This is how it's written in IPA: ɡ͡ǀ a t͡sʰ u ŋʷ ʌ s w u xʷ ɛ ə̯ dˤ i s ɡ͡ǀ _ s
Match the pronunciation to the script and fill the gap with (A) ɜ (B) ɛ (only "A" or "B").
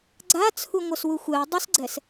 B